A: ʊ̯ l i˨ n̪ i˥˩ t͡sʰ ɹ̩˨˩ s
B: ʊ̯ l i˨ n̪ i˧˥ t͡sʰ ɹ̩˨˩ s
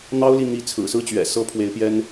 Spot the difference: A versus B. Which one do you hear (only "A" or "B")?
B